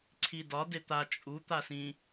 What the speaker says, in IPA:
ǀʰ i d ɒ d e t̪ a t͡ʃʼ u t̪ a s ĩ

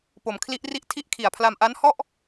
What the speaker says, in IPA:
p o˩˦ m kʰ l i˦˥ ʔ r i˥˩ ʔ tʰ i˥˩ ʔ kʰ i˨˩ a̯ pʰ l a˧ m ʔ a˦˥ n h ɔ˥˩ ʔ

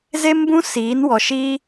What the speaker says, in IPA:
z e˦ m b ũ˦ s iː˨˦ n w ɔ˨ ʃ iː˦

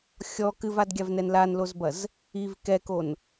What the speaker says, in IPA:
xʲ ɔ k ɨ v a d ɡʲ a v n ɛ n l a n l o z b ɐ z | i v k ɛ k o n

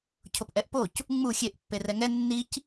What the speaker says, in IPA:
cʰ o p ʔ ɛ ʔ p o c | ŋ͡m u xʲ e ʔ pː e r ɛ ŋ ɛ nː i c

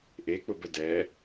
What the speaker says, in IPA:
ʔ e k͡p ʊ b ə d ɛ

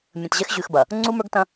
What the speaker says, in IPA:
mʲ ə̃˨ t ʑ ɛ˦ x ʑ ʉ˨ x b ɐ˨ | ŋ͡ǀ u˦ m ə˞˦ ɡ t ɐ̃˦

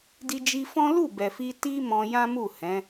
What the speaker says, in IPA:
d i˧ d͡ʒ i˧ f ɔ̃˦ l u˦˨ b ɛ˨ f i˧ t i˧ m ɔ̃˧ j ã˦ m u˦˨ h ɛ̃˨˦

